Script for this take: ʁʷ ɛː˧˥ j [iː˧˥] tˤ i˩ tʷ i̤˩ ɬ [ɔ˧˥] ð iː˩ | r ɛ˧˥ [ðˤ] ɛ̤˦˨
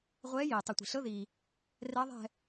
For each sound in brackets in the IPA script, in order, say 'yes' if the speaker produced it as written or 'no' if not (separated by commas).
no, no, yes